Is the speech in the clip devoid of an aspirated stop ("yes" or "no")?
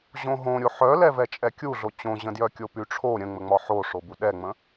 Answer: no